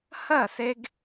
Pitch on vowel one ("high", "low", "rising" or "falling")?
falling